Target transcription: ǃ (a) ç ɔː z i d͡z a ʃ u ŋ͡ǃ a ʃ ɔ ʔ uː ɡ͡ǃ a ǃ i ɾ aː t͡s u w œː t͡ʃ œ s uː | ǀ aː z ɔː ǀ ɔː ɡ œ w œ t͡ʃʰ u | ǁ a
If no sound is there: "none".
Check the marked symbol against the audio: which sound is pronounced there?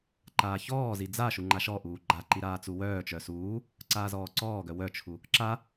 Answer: aː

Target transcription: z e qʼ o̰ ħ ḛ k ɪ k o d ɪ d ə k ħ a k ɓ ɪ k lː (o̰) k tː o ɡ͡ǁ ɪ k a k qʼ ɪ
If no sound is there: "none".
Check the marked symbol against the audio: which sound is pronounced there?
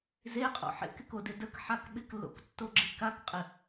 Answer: o̰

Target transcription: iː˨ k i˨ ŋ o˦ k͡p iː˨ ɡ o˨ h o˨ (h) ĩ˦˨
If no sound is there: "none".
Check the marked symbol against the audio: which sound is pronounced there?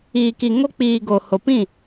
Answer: p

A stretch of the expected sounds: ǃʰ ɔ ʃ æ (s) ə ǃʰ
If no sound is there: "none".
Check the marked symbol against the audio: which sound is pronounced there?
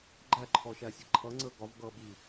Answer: sʲ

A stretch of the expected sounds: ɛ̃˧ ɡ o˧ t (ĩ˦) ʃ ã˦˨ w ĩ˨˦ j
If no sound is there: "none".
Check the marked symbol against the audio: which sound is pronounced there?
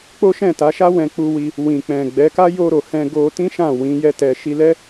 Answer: ĩ˦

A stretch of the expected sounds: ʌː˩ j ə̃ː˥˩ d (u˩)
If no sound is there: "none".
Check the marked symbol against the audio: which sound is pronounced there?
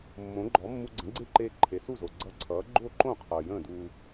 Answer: u˧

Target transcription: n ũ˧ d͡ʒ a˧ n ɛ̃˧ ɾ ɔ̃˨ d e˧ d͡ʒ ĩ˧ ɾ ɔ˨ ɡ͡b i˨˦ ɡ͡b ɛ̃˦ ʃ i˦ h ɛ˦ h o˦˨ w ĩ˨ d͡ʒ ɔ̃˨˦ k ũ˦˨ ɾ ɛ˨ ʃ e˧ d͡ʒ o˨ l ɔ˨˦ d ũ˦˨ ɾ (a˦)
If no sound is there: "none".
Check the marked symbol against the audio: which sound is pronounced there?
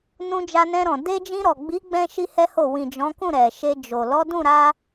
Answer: a˧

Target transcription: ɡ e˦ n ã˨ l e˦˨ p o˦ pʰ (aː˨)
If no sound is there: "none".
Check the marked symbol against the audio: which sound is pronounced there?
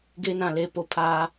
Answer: aː˦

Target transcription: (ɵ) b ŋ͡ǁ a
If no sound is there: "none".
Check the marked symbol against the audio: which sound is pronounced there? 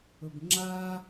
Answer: ɵ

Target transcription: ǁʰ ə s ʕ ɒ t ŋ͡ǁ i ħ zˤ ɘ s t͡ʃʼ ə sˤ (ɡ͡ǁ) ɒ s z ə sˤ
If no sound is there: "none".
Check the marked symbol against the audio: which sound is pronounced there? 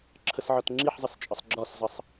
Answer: ɡ͡ǁ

